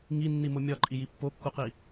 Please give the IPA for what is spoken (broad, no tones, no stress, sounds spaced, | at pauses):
ŋ i nː i m o mʲ ɒ ǃʼ i j i pː o kː u q i